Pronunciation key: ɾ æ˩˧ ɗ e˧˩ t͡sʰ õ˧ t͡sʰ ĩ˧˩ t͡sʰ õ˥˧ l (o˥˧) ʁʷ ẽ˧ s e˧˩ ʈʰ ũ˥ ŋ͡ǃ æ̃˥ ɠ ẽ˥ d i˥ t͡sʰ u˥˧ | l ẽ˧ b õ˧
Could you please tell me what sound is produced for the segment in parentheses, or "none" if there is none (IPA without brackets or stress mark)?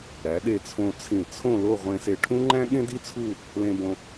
o˥˧